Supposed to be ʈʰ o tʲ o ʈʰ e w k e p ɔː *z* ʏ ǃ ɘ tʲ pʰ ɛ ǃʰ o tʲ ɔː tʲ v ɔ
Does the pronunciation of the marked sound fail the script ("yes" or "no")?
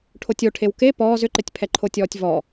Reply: no